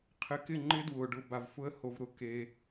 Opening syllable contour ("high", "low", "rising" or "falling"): rising